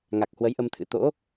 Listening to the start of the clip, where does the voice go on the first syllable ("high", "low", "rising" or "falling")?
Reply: low